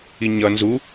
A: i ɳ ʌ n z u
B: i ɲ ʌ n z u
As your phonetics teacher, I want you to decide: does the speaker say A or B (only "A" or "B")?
B